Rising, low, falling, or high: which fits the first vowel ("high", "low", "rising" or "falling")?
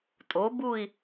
rising